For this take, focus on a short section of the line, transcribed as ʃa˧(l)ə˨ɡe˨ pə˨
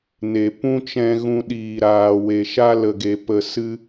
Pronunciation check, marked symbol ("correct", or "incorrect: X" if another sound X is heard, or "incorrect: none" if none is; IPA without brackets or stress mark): correct